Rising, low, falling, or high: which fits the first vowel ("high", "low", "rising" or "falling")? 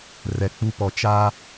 low